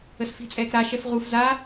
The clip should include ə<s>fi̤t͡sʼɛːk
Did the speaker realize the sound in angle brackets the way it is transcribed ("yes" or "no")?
yes